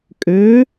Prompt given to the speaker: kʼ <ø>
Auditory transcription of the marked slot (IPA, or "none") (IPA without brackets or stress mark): ø